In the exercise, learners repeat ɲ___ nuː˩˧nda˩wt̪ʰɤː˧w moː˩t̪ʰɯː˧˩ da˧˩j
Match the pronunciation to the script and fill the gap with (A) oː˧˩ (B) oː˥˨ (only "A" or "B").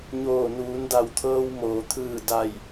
A